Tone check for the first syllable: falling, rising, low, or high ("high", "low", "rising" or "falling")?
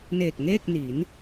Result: low